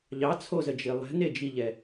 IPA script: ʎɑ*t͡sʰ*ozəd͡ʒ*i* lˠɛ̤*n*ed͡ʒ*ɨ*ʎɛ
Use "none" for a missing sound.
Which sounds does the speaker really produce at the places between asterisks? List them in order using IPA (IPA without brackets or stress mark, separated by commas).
t͡sʰ, i, n, i